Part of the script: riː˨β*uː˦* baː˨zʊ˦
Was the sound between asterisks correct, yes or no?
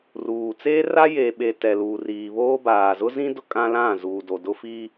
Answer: no